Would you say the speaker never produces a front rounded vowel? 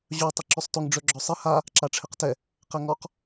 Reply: no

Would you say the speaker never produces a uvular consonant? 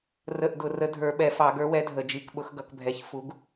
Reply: yes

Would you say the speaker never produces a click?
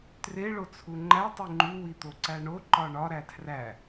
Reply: no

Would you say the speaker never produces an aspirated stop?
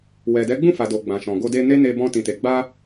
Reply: yes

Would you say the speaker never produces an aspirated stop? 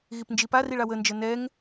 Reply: yes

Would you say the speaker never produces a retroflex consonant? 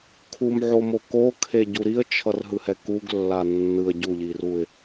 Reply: yes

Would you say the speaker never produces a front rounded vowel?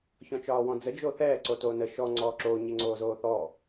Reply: yes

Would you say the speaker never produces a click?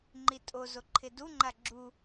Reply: no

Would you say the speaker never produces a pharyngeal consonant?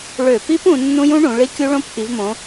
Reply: yes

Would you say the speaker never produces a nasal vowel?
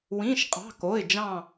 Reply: no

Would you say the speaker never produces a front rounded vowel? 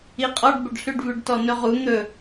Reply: yes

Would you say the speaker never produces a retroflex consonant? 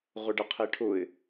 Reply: no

